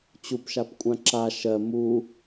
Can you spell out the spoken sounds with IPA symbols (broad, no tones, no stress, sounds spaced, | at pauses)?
t͡ɕ u p ʃ a p kʷʼ ã ǁ a ʃ ɜ m u